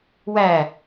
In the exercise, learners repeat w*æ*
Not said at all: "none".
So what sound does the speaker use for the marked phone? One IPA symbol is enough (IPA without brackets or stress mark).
æ